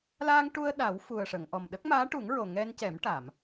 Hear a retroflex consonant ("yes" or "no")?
yes